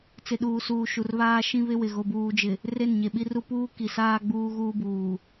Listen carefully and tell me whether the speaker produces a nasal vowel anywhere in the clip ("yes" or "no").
yes